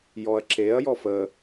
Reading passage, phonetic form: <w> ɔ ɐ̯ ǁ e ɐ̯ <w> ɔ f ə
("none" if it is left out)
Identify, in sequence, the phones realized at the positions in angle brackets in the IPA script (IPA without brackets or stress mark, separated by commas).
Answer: j, j